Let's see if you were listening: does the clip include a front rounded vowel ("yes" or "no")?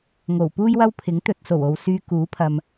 yes